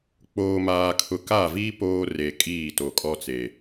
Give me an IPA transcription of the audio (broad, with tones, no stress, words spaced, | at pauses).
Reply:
k͡poː˨maː˨kʰʊ˨ ka˦˨viː˦ poː˦ re˨ kʼiː˦˨to˨ kʼɔ˦t͡se˨